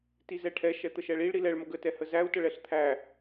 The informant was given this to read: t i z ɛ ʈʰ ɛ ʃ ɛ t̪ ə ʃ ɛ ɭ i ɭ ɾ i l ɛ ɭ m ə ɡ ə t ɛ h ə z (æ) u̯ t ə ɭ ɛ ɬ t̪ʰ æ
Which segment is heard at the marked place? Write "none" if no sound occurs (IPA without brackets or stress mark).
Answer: æ